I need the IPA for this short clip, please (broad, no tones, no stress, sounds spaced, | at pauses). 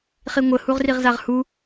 χ i ŋʷ ə h u ʁ r i ʁ z a ʁ h u